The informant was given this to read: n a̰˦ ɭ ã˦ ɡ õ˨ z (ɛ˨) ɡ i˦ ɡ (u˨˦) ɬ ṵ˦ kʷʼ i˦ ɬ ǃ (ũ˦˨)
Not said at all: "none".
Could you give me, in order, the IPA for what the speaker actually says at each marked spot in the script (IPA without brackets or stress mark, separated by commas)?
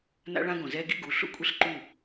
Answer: ɛ˦, u˨˦, u˦˨